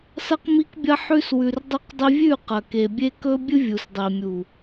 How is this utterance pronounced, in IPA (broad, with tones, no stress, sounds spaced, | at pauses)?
s ɐ˧ q m i˧ k bʲ ɐ˧ ħ ʉ˧ s w ʉ˨ r dˤ i˧ q dˤ i˧ vʲ ʉ˦˨ q ɐ˨ k e˨ bʲ e˧ k ɵ˦ bʲ ɨ˦ vʲ u˨ s dˤ i˨ mʲ u˨